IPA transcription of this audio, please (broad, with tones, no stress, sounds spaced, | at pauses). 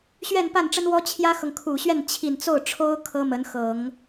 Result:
ɕ ɥ ɛ˥˧ n p a˥˩ n ʈ͡ʂ ə˥ n w ɔ˥ t͡ɕʰ j ä˥ x ɤ˨ ŋ kʰ u˨˩ ɕ ɥ ɛ˥˩ n t͡ɕʰ i˨˩ n t͡s o˥˩ ʊ̯ ʈ͡ʂʰ o˥ ʊ̯ kʰ ɤ˥ m ə˧˥ n x ɤ˨˩˦ ŋ